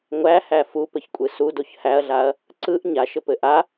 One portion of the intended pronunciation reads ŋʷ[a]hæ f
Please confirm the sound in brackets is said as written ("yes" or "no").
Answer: no